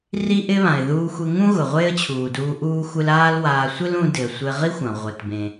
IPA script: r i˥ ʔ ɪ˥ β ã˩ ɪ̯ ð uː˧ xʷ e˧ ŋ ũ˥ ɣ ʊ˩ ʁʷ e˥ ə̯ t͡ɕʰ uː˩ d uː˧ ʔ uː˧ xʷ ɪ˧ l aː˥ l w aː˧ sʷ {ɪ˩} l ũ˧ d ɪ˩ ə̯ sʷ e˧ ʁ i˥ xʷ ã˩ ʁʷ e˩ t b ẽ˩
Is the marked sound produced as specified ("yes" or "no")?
no